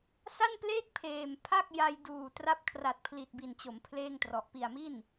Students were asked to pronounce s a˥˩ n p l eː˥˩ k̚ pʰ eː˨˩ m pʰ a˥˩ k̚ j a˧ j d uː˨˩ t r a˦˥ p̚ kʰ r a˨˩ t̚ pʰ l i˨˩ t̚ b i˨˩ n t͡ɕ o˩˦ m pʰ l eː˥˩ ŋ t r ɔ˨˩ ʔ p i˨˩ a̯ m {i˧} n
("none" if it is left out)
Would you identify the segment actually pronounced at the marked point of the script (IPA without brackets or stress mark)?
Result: i˥˩